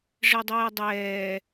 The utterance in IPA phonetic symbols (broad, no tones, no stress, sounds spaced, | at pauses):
ʐ ɪ ə̯ dˤ ɛː dˤ ɛː